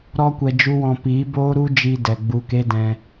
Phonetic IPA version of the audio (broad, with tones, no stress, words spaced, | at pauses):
ɾɔ˧kʷɛ˨ d͡ʒu˦wɔ̃˧ piː˨˦boː˦ɾu˦ d͡ʒiː˧dɛ˨ ɡ͡bu˧ke˦dɛ̃˧